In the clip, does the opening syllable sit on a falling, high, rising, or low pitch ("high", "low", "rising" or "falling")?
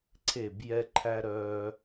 falling